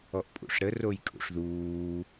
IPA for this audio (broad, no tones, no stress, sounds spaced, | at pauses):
ɔ ʔ pʼ ṵ ʂ ɾ ə r o j kʼ ṵ ʂ ð uː